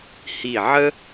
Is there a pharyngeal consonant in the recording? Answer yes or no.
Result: yes